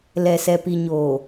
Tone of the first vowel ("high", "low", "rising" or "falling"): low